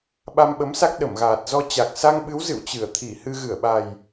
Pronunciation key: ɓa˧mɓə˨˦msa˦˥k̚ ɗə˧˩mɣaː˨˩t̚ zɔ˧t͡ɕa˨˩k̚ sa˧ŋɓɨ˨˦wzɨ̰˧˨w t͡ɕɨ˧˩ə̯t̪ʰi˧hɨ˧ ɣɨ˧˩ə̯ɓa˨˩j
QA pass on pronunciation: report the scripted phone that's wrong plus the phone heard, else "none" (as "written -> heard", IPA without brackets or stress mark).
i˧ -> i˧˩